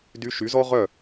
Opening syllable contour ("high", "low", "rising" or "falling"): rising